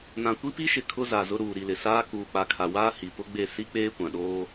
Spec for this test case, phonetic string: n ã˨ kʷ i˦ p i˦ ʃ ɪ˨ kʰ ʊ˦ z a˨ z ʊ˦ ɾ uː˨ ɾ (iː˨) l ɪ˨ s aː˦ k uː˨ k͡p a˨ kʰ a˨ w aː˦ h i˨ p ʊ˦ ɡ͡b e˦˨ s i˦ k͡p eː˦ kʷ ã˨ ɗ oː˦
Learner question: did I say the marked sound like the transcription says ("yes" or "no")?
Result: no